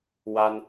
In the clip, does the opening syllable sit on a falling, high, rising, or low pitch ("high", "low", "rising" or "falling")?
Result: high